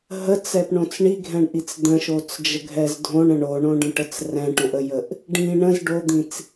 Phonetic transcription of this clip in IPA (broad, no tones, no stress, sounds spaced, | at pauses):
ɦ ə t͡s ɛ p ɳ õ t͡s ɳ i ɡʱ ɛ̃ ɳ ʔ i t͡s d̪ ə̃ ʃ o t͡s d͡ʒ ə ɡʱ ɛ z dʱ õ ɳ ə̃ ɳ o ɳ õ ɖ ə̃ ʈ ə t͡s r ɛ̃ ʈ õ ʔ ə j ə ʔ | ɖ ĩ ɳ ə̃ z ɖ o d̪ ĩ t͡s